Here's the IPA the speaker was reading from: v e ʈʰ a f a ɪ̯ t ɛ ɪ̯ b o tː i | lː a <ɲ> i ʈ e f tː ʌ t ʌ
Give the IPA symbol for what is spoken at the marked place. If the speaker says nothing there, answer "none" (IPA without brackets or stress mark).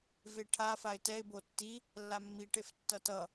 mː